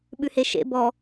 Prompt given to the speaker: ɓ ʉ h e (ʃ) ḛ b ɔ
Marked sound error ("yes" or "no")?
no